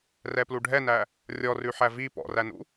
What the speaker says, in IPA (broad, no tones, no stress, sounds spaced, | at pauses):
r ɛ p l u ɖʱ ɛ n æ | rʲ ɔ r ʉ ħ æ v i p ɔ̰ r æ n ṵ